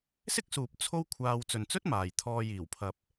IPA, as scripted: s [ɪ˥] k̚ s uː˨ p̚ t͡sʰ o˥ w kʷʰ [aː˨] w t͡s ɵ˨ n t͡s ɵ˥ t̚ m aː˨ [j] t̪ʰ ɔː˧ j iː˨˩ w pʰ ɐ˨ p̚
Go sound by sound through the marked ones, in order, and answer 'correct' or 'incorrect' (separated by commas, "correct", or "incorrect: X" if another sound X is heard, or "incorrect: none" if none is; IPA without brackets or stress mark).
correct, incorrect: aː˧, correct